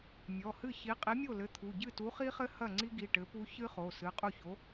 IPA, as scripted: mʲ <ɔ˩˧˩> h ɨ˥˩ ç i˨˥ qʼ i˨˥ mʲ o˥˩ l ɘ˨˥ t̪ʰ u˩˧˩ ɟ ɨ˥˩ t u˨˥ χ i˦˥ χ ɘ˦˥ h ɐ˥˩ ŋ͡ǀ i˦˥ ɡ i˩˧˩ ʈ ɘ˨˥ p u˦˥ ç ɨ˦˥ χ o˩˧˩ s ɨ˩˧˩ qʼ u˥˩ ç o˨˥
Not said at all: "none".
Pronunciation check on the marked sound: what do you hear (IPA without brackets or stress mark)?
ɔ˩˧˩